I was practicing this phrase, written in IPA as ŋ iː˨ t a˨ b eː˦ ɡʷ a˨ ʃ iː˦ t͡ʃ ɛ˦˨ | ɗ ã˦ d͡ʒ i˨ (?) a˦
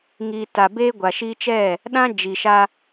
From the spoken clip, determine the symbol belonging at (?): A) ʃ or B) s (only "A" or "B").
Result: A